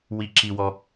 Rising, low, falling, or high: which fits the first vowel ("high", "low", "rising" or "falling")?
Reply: high